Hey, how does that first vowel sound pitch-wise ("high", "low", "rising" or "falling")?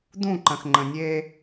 falling